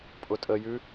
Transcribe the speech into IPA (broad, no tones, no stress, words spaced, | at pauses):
pʼʊtʼəjʉ